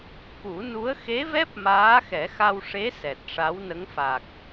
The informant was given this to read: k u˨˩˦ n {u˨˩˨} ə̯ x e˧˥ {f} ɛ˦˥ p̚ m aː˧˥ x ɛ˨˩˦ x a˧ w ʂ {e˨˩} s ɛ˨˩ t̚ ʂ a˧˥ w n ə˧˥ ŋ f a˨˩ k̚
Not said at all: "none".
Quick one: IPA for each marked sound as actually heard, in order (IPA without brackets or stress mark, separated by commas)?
u˧˥, v, e˧˥